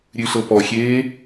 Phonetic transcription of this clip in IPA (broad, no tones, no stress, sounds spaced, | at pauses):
ɾʲ ʉ ɬ ɤ p ɔ xʲ eː